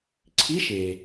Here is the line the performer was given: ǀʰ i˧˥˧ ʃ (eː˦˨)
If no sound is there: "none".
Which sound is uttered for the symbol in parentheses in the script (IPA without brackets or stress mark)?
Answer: eː˩